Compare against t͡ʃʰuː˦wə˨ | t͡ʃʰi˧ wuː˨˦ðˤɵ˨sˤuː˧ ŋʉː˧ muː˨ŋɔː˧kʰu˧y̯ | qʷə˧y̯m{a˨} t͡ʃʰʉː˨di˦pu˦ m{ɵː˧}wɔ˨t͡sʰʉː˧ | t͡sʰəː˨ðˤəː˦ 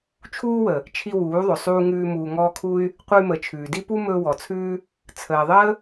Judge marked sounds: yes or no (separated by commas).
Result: no, yes